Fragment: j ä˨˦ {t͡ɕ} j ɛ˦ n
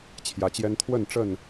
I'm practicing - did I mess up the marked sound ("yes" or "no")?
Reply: no